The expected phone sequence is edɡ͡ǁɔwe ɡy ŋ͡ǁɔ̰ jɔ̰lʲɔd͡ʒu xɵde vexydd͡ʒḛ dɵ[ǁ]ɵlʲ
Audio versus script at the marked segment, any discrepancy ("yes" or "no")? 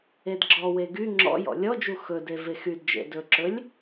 no